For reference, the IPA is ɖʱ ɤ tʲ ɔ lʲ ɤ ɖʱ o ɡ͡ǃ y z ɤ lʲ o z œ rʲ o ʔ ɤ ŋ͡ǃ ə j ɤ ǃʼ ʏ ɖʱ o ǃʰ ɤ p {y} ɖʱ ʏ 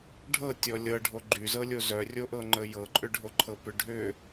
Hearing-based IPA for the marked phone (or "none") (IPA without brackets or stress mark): ʏ